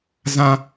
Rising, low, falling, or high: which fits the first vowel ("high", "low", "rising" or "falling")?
high